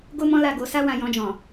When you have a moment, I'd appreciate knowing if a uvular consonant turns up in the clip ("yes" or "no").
no